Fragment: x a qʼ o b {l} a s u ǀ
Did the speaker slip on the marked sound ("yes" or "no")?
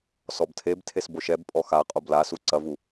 no